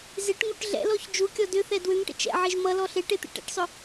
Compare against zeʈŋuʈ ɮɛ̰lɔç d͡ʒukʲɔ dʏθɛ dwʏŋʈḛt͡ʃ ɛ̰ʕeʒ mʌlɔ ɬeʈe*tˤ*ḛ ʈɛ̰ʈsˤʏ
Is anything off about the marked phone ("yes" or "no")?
yes